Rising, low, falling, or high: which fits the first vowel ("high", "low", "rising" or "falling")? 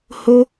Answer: high